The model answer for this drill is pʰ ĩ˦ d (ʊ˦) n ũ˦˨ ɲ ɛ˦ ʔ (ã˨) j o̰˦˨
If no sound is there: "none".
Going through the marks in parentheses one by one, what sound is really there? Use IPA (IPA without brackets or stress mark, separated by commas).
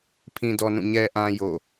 ɔ˦, ã˦